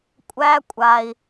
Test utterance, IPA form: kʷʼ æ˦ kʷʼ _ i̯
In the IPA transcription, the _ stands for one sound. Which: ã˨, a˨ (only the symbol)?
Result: a˨